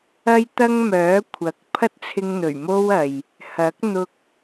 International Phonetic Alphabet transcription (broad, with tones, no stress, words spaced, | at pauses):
ɐ˥jt̪ɐ˥ŋmœː˨˥kʷʰɐ˨˥k̚ pʰɐ˥t̚t͡sʰɪ˧ŋn̪ɵ˨˩ɥ mo˥wɐ˨j | hɐ˨˥k̚ n̪ʊ˧k̚